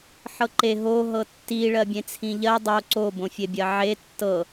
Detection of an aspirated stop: present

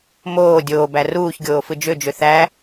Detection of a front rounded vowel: present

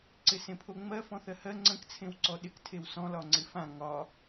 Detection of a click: present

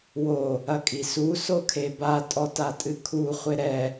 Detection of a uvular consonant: present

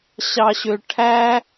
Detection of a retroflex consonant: present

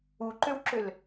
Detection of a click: present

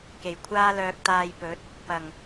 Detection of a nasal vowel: absent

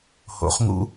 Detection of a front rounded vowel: absent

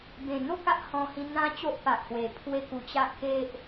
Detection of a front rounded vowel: absent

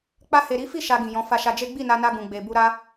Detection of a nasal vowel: present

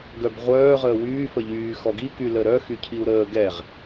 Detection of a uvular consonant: present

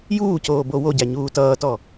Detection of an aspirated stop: absent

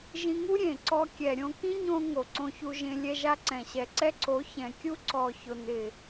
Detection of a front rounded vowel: absent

